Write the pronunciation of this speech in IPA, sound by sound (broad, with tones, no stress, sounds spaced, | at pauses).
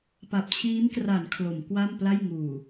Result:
p a˨˩ p̚ t͡ɕʰ iː˦˥ m k r a˩˦ n kʰ l o˩˦ m k w a˥˩ m p l a˥˩ j ŋ uː˨˩